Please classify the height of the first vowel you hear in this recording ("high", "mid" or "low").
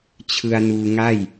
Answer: high